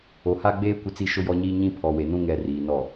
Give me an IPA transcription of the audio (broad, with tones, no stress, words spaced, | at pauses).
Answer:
o˨ha˦ɡ͡beː˦ kʷɪ˦t͡si˦ ʃʊ˦jɔ˦ɲiː˦ ɲĩ˦pʰɔ˨we˨nũ˦ ŋɛ˦riː˨ nɔ˦˨